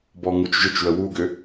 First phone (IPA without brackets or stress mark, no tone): b